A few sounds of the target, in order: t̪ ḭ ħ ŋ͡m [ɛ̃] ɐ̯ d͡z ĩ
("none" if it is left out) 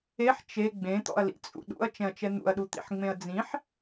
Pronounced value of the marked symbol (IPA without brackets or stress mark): ẽ